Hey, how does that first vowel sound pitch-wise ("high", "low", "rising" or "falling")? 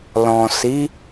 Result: low